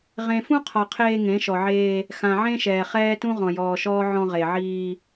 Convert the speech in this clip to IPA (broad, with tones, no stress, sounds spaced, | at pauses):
ʁ ẽ˨ f ũ˦ qʰ ɒ˨ qʰ eː˦ ŋ ẽ˨˦ ʃ ɔ˨ ʕ eː˦ | x ã˨ ʕ ẽ˦ ʃ ɛː˨ χ ɛː˦ t ũ˦ ʁ ɔ̃˨ j ɔː˨ ʃ ɔː˦ ʕ ɔ̃˦ ʁ e˨ ʕ iː˦